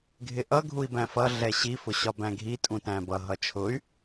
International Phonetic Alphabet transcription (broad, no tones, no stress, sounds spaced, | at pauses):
ɡʱ ɪ ʔ ʌ ɡʱ u i̯ b æ̃ f ʌ ɮ ɛ ɕ i f ʊ ɕ ɒ b æ̃ ɡʱ i tʼ ũ t æ̃ b ʌ ɦ ʌ t͡ʃʰ ʊ y̯